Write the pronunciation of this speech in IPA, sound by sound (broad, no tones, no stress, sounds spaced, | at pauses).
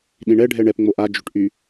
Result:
ɗ ĩ ɳ ɛ ɖʱ ɛ ɳ ɛ p ŋ͡m o ʔ a d͡ʒ ø ʈ ʔ y